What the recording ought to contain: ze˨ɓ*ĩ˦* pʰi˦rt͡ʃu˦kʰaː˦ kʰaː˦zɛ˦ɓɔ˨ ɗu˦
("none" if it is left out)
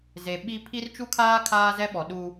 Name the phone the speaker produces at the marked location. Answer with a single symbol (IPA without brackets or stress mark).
i˦